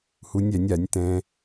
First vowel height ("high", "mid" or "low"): high